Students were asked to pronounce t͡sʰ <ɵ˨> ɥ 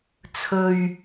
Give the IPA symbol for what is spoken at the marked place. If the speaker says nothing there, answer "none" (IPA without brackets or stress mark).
ɵ˨